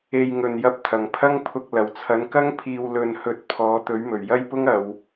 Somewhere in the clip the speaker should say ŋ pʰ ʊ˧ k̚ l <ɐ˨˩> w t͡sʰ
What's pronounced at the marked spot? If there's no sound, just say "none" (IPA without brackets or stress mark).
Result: ɐ˨˩